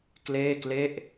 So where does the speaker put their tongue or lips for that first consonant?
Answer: velum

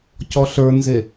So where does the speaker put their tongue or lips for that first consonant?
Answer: palate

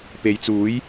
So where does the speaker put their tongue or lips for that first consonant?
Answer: lips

